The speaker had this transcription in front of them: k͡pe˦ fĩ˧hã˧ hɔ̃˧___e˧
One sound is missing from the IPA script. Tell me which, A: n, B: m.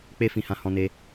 A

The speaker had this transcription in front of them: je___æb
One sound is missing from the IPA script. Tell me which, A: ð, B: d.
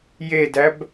B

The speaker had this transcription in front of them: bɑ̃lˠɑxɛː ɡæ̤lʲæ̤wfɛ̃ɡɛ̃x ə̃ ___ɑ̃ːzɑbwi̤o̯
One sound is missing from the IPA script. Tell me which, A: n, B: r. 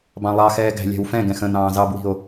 A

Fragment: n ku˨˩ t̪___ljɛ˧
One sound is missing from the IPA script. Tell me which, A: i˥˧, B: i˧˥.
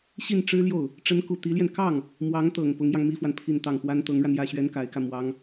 B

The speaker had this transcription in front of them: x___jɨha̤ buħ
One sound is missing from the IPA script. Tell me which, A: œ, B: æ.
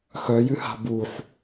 A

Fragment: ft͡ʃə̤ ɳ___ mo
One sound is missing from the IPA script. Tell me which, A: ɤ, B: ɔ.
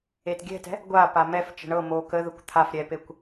A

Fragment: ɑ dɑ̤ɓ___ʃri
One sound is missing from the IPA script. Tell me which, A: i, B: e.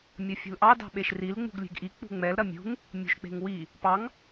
B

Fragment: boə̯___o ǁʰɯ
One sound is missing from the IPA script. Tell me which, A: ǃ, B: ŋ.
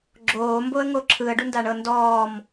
B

